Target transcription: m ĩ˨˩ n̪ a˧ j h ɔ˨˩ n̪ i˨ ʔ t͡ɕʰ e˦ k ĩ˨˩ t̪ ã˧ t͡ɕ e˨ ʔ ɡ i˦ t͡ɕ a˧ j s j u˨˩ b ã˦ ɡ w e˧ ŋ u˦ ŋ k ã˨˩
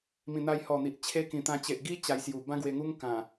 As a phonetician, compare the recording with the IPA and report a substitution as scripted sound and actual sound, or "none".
none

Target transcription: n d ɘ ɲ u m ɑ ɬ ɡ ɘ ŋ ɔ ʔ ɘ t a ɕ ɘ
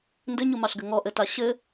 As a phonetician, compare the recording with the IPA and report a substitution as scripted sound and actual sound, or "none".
none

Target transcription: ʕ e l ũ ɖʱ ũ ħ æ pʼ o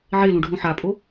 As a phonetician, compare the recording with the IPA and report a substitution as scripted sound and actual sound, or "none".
æ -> a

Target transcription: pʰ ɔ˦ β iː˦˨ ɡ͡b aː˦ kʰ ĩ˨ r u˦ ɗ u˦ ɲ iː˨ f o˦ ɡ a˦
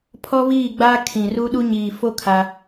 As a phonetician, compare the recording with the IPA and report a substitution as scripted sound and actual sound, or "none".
ɡ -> kʰ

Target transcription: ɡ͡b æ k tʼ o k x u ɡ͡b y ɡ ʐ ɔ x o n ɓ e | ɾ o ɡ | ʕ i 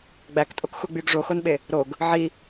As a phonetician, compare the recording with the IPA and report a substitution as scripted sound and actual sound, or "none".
ɔ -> o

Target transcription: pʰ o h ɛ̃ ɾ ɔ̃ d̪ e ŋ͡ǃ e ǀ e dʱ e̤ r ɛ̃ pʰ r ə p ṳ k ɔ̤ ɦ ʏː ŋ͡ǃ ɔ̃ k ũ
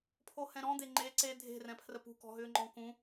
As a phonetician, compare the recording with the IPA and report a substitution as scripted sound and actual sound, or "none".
none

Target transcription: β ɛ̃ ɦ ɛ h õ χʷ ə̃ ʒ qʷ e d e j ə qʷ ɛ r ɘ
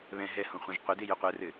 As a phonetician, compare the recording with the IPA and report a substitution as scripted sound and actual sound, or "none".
none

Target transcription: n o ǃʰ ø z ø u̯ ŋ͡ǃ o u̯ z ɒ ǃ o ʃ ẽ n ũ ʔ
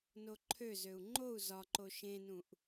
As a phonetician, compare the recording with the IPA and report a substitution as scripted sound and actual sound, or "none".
none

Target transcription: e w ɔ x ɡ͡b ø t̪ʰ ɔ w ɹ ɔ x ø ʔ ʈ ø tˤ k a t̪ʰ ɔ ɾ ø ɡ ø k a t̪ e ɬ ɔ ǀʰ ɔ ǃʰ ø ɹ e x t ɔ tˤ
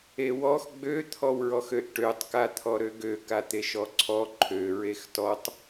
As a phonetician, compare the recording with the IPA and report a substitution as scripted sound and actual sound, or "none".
ɬ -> ʃ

